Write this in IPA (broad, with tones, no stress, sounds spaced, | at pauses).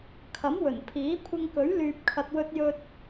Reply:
kʰ ɐ˨˥ m w ɵ˨˩ n pʰ iː˨˥ kʷʰ ɪ˧ ŋ k ɵ˨˥ ɥ l yː˨ p̚ kʰ ɐ˨ t̚ w ɵ˧ t̚ j ɵ˧ t̚